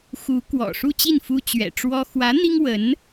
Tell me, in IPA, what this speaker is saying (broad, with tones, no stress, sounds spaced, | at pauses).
x u˧˥ k w ɔ̰˨˩ ʂ u˥˧ t͡ɕ i˥˩ n f u˥ t͡ɕ ɥ ɛ̰˨˩ ʈ͡ʂ w ɔ˥ x w ä˧˥ n̪ i˥ ŋ w ə˧˥ n